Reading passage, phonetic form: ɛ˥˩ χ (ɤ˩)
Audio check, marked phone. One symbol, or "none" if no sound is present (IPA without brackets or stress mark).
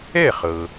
ɤ˩